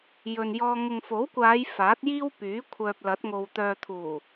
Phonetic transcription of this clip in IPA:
j ɵ˨ n j ɔː˧ ŋ ʊ˨ ŋ f o˨˥ w kʷ aː˨˧ j f aː˨˥ t̚ j iː˥ w p yː˨˥ kʷʰ œː˨ p̚ l ɐ˨˥ t̚ ŋ o˨ w t̪ œː˨ t̪ʰ uː˨˩

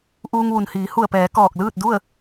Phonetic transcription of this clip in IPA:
ʔ uː˧ ŋ ʋ u˩ n h iː˩˧ h u˧˩ ə̯ p ɛː˩˧ k ɔː˧˩ k̚ l ɯː˥˨ t̚ d u˥˨ ə̯

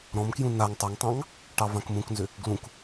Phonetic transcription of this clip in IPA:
ɾ ɔ̃ m k j ũ n a ŋ tˤ ɑ ŋ tˤ ɑ̃ ŋ | ʈ ɑ v ã k m ũ k n z ʏ | ɡ l ũ k

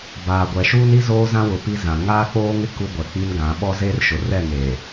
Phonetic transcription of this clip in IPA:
b aː˨ ɡʷ ɛ˨ ʃ uː˦ n i˦ z oː˦ z ã˦ w ʊ˨ p i˦ z ã˨ ŋ aː˦ k͡p oː˦ ŋ ɪ˦ k u˦ ɡʷ ɛ˨ k͡p i˦ n ɡ ã˨˦ ɓ ɔ˦ z eː˦ r ʃ ʊ˨ r ɛ˦˨ ŋ eː˨

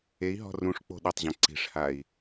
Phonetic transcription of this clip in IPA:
e i̯ ɦ ɔ̤ r ũ ʂ k͡p o̤ ɗ ɘ tˤ ʑ ɐ̃ ǀ i̤ ʂ h a i̯

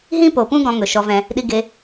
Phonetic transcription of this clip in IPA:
ɦ ĩ˦ p o˨ p ũ˦ ɡ ɔ̃˧ ŋ ɵ˨ ʃ ɔ˧ v ɛ̃˧ | ɗ i˧ ɡ e˧

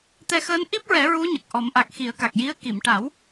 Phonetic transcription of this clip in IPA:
t̪ ɛ˧ x əː˧˥ n ʔ i˦˥ p̚ ɹ ɛ˨˩˦ ɹ u˧˥ ɲ ə˨˩ k̚ ʔ ɔ˨˩˦ m ʔ a˨˩ k̚ x i˨˩˦ ə̯ k a˨˩ k̚ j i˧˥ ə̯ k i˨˩˨ m ʈ a˨˩˦ w

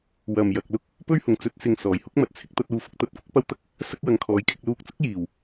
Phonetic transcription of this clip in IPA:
w ɐ˨˩ m j ɐ˨ k̚ l ʊ˥ k̚ | p ɵ˥ ɥ h ʊ˨˩ ŋ t͡s ɵ˨˥ t̚ s ɪ˨ ŋ s ɔː˨˩ j h ʊ˥ k̚ m ɐ˨ t̚ t͡sʰ ɪ˥ k̚ t̪ ɐ˥ t̚ uː˧ f ʊ˥ k̚ t̪ ɐ˧ t̚ kʷ ɪ˥ k̚ p ɐ˥ w t̪ ɐ˥ k̚ | s ɐ˥ k̚ w ɐ˨˧ ŋ kʰ ɔː˨˧ j kʰ ɪ˨˥ k̚ l uː˧ k̚ t͡s ʊ˥ k̚ j iː˨˩ w

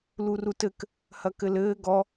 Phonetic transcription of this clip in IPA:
l u r u t ɘ k | h ɐ k ɘ l ɘː ɡ ɔ

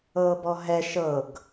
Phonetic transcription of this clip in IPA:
ɤː b ɔ ɦ ɛ ʃ ɤ ɡ

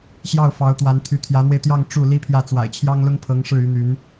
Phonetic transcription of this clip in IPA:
ɕ j ɑ˥˩ ʊ̯ f ɑ˧˥ ʊ̯ t̪ w a˧˥ n t̪ʰ y˧˥ t̪ʰ j ä˧˥ n̪ w e˧ ɪ̯ t̪ j ɑ˥˧ ŋ ʈ͡ʂ u˥˩ l i˥ pʰ j ä˥˩ t͡s w a̰˨˩ ɪ̯ t͡ɕʰ j ɑ˥ ŋ l ʊ˥ ŋ pʰ ɤ˧˥ ŋ ʂ ɻ̩˥˩ y˧˥ n̪ y˧˥ n

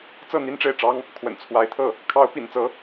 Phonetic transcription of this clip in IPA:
t͡s ɤ˥˩ n̪ i˥ n ʈ͡ʂ e˥˩ ɪ̯ ʈ͡ʂ ɑ˥ ŋ | kʰ w ə̰˨˩ n t͡sʰ w a˧˥ ɪ̯ t̪ʰ ɤ˥˩ | kʰ ɑ˧˥ ʊ̯ p ḭ˨˩ n t͡s ɤ˧˥

